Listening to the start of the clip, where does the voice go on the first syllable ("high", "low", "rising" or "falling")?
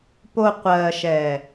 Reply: low